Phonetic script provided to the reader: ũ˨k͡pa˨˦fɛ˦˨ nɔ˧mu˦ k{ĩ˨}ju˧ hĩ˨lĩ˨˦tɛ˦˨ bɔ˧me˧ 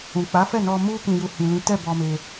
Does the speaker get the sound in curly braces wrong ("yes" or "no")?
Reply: yes